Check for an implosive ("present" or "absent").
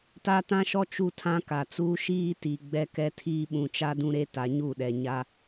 present